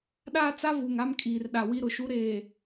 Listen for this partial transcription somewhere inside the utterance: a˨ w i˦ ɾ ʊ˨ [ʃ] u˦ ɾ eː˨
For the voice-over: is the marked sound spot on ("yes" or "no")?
yes